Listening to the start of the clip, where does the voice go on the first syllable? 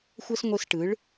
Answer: high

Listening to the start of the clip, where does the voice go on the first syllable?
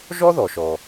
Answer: high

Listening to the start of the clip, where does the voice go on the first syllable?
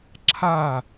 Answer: falling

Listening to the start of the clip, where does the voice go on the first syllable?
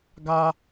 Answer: high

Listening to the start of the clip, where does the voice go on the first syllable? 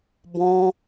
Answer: high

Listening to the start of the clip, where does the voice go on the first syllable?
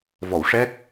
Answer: low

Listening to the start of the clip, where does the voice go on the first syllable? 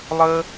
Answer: high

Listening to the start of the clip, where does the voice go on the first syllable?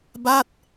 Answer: falling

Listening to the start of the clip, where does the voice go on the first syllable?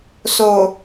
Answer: low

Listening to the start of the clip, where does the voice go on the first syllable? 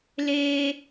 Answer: high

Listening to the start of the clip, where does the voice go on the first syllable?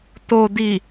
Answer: low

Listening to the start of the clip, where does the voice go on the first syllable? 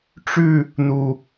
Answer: falling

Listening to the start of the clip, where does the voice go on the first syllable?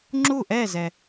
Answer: falling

